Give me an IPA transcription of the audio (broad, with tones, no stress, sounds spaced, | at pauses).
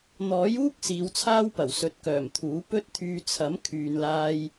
n̪ ɔː˨˥ j uː˥ k̚ s iː˨˧ w t͡sʰ aː˥ w p ɐ˨˩ w s ɵ˨ t̚ k œː˨˩ m t̪ʰ uː˨˥ p ɵ˥ t̚ t̪ʰ yː˧ t͡sʰ ɐ˨˥ m kʰ yː˨ n l aː˧ j